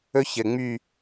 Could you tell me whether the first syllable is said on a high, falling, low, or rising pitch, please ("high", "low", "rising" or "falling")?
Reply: high